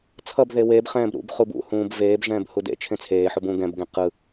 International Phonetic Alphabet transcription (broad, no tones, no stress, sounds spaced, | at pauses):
t͡sʰ ʌ b ð e w eː b χ ɛ̃ː b ɾ ṵ b χ u b ṵ h ũː b v eː b ʒ ɛ̃ː b h u d ḛ t͡ʃʰ ẽ t͡sʰ eː ħ o b ũː ɡ ɛ̃ b ɡ ẽ q ɯ